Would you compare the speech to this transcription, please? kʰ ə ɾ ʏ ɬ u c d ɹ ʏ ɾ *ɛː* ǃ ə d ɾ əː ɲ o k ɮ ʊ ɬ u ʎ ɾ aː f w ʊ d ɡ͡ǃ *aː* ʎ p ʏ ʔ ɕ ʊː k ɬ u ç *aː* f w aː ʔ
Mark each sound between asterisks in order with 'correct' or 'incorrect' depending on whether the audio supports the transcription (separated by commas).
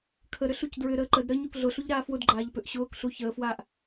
incorrect, correct, incorrect